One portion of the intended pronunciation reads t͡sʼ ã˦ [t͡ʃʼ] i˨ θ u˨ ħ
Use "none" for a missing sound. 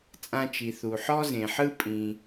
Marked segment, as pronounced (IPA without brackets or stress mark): t͡ʃ